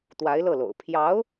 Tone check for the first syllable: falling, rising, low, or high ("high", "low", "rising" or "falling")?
rising